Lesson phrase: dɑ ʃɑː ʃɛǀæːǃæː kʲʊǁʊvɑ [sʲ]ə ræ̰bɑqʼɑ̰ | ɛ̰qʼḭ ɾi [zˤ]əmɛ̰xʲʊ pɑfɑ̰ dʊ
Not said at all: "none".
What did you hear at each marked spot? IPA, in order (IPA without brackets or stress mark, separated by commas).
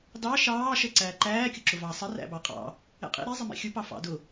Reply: sˤ, zˤ